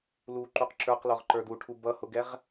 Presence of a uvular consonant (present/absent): present